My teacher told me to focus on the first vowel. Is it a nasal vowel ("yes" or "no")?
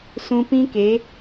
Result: yes